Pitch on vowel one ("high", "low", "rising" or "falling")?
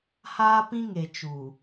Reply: high